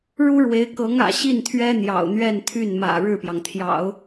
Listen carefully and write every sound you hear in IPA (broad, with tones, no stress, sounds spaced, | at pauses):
ɻ u˥ ɻ w e˧˥ ɪ̯ k ɤ˧˥ ŋ ä̰˨˩ ɕ i˥˩ n t̪ʰ ɥ ɛ˥ n̪ j ɑ̰˨˩ ʊ̯ n̪ ɥ ɛ˥˧ n t̪ʰ y˥˩ n m ä̰˨˩ ɻ ɻ̩˥˩ p j ɑ˩ ŋ t̪ʰ j ɑ̰˨˩˦ ʊ̯